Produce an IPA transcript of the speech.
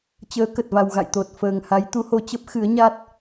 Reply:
t͡ɕ əː˨˦ k ə˨˩ t̚ v a˨˩ w ɣ a̰˧˨ j t̪ o˨˩ t̚ f əː˨˩ ŋ h a˨˦ j t̪ u˨˦ h o˧ t͡ɕ ə˦˥ p̚ x ɨ˨˦ ə̯ ɲ a˦˥ t̚

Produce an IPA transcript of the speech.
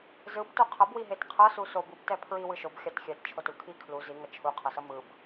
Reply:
z ɯ b t o qʰ ʌ b w i ɦ e t qʰ ʌ s u s o b u b t ɛ pʰ ɹ i w ɯ ʃ o b xʲ a t xʲ ɛ t t͡ʃʰ o t u kʰ i kʰ l u z i ŋ ʌ t͡ʃʰ u qʰ ʌ s ʌ m ɯ b

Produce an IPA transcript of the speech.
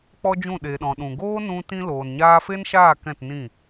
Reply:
k͡p ɔ˦ d͡ʒ ũ˦˨ ɗ e˨ ɗ ɔ̃˨ ɗ ũ˨ ɡ oː˦ n ũ˧ t ĩ˧ l oː˨ n ɲ aː˧ f e˦ n ʃ aː˦˨ k ɛ̃˦˨ t n ĩ˦˨

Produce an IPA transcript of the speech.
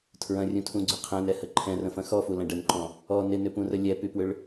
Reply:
tʰ ɹ ɐ̃ rʲ ũ tʰ ũ ɡ͡ǀ ʏ qʰ ɛ̃ n ɛ h ə ǃʰ ɛ̃ r ə̃ f ɐ̃ x ɔ f u l ɐ̃ ɖ ə n ǃ ɔ̃ | ɔ n ɪ n ʏ p ũ r ə lʲ ɛ p y p w ʏ ɭ

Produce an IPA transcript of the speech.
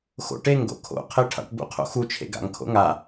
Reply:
x o̰ ʈ e ŋ ɡ o̰ kʰ o̰ qʰ e ʈʰ a̰ ʈ b ṵ qʰ o̰ x u t͡ʃʰ ḛ ɡ a̰ ŋ kʰ o̰ ŋ a

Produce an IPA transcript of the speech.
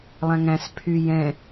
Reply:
lˠ æ̃ ŋ æ̃ s pʰ y j ɛ̃

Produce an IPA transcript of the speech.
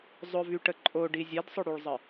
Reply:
zˤ ʊ v y ʈ ə ǃʼ o ɖ i zʲ ɛ d sˤ ʊ ɽ y ɭ zˤ ə

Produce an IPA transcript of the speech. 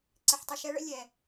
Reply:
ǀ ɪ˨ ħ tˤ ə˨ ʃ ɛ˦ ɭ ə̰˦ lʲ ɛ˨

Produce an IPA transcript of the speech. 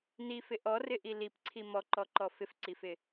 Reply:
n i f ɪ ʔ ɔ r ɪ ʔ i l i p ǀʰ i m ɔ ǃ ɔ ǃ ɔ f ɪ f ǀ i f ɪ

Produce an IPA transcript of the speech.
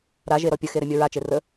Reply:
ɾ a ʒ e ɾ ɔ pʲ ə x e ɾ ɛ mʲ ɔ ɹ a t͡ʃ e r ə

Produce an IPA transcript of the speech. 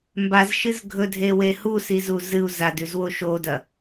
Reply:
m b a z ʃ ɨ z ɡʱ ɵ dʱ e w e h u s i z u z ɨ u̯ z a d ʉ z w o ʃ o d ɐ

